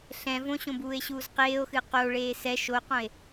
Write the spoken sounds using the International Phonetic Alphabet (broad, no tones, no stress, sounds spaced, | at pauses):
ɬ ɛ̃ v õ ɕ õ b uː e̯ ɕ uː z q eː o̯ x ɨ q o ɭ eː s ɛ ʃ o q õ e̯